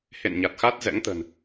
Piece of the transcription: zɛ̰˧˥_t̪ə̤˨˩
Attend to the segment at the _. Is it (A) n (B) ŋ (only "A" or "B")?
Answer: B